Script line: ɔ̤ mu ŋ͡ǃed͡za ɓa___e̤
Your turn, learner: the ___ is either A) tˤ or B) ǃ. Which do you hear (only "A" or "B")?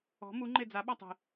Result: A